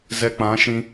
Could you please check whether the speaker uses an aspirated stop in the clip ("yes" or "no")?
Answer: no